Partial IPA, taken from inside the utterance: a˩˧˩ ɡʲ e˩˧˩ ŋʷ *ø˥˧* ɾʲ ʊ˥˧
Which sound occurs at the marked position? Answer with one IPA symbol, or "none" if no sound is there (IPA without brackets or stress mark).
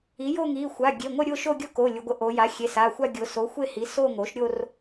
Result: ə˥˧